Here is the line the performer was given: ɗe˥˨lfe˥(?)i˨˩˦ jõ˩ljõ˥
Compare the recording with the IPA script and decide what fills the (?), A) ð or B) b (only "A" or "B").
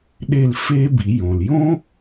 B